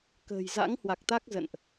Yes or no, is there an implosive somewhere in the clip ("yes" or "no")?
no